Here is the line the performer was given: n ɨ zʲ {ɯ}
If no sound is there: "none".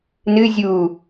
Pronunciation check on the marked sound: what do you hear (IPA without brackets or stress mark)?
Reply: u